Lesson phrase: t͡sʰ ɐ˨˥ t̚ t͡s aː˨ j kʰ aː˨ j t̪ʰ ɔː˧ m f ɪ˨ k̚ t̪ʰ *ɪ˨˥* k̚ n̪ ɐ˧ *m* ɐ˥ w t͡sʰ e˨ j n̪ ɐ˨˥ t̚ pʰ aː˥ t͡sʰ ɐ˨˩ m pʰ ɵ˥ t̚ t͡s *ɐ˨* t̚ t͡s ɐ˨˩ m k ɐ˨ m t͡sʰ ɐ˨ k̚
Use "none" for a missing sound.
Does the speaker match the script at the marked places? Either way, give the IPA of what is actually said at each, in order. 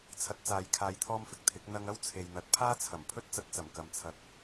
ɪ˨˥, ŋ, ɐ˧

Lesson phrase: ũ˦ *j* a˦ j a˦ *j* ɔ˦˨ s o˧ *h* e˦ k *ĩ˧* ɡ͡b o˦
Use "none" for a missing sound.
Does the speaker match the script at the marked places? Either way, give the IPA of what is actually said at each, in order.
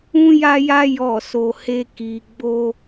j, j, h, i˧

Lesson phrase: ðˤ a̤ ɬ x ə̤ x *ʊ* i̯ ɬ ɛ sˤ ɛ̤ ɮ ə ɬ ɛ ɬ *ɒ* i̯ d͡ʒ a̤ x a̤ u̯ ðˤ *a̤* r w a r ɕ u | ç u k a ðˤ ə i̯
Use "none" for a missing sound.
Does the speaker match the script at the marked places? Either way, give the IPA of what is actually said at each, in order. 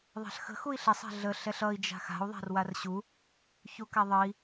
u, ʌ, a̤

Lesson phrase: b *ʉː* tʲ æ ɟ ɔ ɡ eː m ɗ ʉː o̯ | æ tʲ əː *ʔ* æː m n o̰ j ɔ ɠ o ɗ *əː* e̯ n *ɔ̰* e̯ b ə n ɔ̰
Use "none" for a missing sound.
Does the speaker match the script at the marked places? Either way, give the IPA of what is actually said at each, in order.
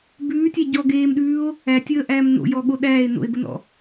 ʉː, ʔ, æː, o̰

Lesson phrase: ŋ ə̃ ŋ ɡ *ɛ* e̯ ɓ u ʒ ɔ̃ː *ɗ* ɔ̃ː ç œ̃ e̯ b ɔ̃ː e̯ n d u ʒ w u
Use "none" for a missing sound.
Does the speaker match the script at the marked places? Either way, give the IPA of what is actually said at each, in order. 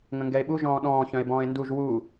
ɛ, ɗ

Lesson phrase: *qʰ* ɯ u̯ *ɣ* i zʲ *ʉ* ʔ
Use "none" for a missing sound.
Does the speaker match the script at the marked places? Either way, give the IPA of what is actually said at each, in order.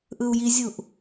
ʔ, j, u

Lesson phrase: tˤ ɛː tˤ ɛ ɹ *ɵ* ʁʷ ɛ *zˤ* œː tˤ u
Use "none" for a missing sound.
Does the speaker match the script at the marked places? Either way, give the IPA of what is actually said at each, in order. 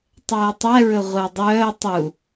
ɵ, dˤ

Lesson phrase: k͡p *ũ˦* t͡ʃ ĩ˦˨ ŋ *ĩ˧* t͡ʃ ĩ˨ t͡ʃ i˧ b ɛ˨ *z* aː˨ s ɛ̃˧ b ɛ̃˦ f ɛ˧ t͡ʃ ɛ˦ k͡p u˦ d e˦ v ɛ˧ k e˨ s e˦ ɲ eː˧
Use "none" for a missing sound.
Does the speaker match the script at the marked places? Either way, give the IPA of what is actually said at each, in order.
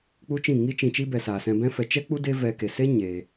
u˦, i˧, s

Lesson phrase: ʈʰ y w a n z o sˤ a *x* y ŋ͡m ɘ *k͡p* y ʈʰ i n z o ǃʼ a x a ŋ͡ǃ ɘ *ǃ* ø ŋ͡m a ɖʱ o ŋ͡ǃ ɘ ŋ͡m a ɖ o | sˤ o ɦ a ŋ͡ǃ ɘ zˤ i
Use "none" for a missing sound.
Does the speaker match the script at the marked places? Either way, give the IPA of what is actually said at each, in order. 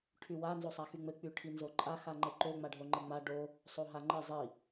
x, k͡p, ǃ

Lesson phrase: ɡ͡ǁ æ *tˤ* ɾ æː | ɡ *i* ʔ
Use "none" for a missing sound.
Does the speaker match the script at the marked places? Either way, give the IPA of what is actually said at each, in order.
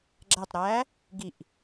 tˤ, i

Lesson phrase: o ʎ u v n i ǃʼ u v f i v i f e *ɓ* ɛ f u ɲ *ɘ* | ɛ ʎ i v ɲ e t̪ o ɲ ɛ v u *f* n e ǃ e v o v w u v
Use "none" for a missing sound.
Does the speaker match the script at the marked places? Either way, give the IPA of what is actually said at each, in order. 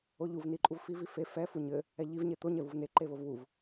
f, ɘ, v

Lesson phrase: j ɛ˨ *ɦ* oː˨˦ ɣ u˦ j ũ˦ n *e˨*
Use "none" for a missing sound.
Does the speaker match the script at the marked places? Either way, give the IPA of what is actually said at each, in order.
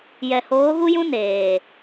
h, eː˨

